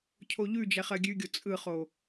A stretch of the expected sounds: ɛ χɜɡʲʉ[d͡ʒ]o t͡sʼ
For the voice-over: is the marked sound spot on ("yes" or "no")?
no